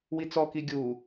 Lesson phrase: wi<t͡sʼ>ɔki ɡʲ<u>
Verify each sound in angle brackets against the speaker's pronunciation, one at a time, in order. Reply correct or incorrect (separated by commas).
incorrect, correct